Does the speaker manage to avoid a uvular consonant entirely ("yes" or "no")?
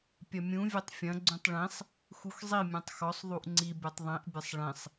yes